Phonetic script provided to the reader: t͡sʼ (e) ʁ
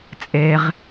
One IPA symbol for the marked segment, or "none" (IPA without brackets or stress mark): e